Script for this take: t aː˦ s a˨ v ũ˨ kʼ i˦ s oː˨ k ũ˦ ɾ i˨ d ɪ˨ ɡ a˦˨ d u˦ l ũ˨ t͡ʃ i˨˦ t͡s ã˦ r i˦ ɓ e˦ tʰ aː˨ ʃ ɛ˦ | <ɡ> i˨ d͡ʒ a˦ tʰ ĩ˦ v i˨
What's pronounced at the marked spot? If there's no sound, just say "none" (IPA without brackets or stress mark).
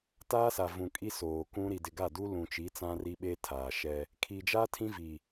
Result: kʰ